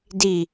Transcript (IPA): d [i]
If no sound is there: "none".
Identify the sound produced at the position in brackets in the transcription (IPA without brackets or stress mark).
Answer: i